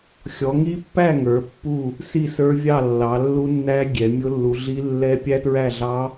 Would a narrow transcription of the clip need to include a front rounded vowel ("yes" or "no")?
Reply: no